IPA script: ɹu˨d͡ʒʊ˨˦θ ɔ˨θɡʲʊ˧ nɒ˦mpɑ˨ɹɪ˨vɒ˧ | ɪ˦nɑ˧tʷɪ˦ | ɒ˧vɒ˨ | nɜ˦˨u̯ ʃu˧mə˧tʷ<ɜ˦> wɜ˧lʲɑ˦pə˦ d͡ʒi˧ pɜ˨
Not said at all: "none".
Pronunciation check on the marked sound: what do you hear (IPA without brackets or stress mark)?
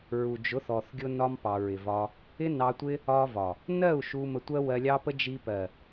ɜ˦